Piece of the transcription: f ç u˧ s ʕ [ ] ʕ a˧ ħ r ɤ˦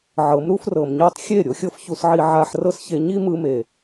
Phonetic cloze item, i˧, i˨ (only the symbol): i˧